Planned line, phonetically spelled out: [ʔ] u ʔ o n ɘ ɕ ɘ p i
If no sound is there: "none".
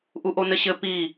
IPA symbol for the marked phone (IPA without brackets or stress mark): ʔ